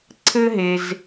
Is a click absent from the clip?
no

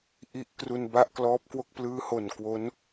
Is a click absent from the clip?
yes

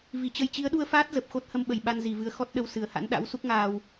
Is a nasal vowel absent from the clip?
yes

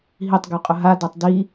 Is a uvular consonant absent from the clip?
no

